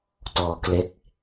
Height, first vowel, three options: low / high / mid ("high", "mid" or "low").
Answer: mid